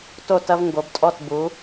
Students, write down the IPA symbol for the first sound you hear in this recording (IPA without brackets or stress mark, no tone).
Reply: t